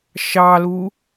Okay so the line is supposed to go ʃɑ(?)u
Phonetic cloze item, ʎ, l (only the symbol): l